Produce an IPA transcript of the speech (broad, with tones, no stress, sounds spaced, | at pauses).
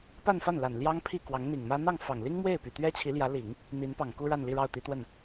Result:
p a˥˧ n f a˥˩ n l a˨˩ n l j ɑ˥ ŋ pʰ i˥˩ k w ɑ˧˥ ŋ n̪ i˨˩ ŋ m ä˥ n̪ ɑ˥˩ ŋ f ɑ˨˩ ŋ l i˥ ŋ m w e˥˩ ɪ̯ p y˨˩ t̪ ɥ ɛ˥ t͡ɕʰ i˧˥ l j ä˧˥ l i˨˩˦ ŋ | n̪ i˧˥ n p ɑ˨˩ ŋ k u˥ ɻ a˥˧ n l i˥˧ ɻ ɑ˥˩ ʊ̯ t̪ i˧˥ t̪ w ə˥˩ n